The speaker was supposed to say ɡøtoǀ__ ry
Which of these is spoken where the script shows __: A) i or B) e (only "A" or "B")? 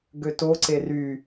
B